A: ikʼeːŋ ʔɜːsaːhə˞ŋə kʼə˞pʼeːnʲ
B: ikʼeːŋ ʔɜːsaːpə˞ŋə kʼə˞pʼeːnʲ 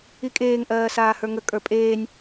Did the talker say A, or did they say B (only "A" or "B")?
A